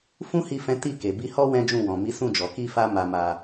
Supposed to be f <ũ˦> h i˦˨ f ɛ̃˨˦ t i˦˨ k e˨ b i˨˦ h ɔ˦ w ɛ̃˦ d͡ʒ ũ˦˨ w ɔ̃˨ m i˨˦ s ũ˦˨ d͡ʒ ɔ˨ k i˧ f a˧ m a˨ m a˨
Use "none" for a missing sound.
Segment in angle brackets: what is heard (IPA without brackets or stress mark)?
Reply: ũ˦